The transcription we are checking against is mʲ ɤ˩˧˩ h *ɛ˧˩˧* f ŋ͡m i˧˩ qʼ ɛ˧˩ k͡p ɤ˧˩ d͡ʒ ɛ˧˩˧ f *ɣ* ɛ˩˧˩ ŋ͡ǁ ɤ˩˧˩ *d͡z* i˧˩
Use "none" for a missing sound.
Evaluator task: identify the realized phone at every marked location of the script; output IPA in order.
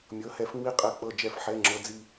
ɛ˧˩˧, ħ, d͡z

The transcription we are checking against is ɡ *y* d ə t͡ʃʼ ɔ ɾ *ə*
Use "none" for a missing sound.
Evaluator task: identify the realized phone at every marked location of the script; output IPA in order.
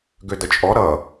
ø, ʌ

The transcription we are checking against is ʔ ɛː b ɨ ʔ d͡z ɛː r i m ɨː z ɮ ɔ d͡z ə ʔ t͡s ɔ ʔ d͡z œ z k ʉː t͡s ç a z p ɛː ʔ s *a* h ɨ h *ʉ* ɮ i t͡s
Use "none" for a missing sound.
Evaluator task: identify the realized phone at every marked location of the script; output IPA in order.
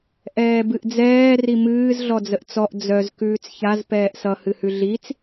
ʌ, ʉ

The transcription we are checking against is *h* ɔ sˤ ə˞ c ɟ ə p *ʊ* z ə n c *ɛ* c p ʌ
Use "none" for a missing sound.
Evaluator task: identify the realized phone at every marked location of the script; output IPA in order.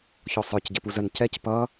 ç, u, ɛ

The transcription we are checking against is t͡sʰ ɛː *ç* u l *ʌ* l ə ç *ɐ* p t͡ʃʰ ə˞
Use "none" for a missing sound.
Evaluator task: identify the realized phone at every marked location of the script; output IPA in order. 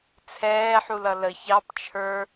ħ, ʌ, ɑ

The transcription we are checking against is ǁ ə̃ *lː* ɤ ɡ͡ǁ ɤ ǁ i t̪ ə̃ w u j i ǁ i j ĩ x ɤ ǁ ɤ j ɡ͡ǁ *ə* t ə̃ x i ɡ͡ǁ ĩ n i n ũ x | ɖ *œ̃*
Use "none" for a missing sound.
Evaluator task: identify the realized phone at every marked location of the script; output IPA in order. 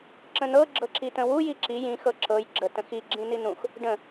n̪, ə, ə̃

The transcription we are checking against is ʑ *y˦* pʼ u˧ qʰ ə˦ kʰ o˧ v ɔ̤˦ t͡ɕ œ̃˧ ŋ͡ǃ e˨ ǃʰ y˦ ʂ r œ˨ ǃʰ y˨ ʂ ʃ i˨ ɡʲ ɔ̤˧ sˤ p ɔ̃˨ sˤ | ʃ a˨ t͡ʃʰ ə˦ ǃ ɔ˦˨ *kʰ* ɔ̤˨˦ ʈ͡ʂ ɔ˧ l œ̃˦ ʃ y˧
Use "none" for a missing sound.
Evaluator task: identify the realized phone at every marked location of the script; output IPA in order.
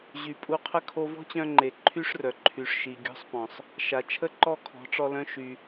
y˨, kʰ

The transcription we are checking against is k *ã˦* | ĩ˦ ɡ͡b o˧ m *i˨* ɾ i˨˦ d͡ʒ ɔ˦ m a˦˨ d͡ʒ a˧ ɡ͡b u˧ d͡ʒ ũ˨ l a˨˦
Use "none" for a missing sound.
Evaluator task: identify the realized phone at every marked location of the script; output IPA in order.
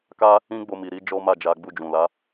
a˦, i˨

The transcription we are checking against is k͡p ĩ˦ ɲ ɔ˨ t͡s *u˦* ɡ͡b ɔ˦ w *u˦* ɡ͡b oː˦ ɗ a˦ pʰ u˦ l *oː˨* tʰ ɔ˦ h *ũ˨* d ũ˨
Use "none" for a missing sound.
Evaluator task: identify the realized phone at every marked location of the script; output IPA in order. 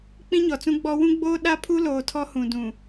ũ˦, ũ˦, oː˨, ũ˨

